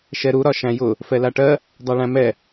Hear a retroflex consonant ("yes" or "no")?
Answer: yes